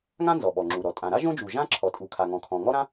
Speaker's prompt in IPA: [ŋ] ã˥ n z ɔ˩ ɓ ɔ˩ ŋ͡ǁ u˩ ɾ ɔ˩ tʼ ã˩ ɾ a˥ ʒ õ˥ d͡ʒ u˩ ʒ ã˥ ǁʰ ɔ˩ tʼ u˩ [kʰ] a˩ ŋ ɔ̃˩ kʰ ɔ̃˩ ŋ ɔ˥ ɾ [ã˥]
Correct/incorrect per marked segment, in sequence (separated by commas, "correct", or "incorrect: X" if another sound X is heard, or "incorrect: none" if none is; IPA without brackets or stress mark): correct, correct, correct